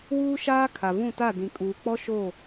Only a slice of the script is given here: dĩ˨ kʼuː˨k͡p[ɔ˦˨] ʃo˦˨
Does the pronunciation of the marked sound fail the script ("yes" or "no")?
yes